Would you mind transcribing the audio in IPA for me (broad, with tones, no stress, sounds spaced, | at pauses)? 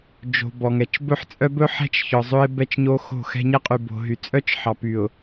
d͡ʒ o̤˨ b ɔ˨ ŋ ɛ˨ t͡ʃ b ɵ˦ ħ t͡sʼ œ˦ b ɵ˦ ħ ɛ̤˦ t͡ʃ ç ɔ˨ zˤ ɵ˦ ɪ̯ b ɛ˦ t͡ʃ ɲ o˦ x o̤˦˨ x ɛ̤˦ ɲ ɛ˦ qʼ y˨ b o̤˨ ɦ y˨ t͡sʼ œ˦ t͡ʃ ħ ɑ˨ p y˨ ʊ̯